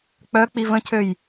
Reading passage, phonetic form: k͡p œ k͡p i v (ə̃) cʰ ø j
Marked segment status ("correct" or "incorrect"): correct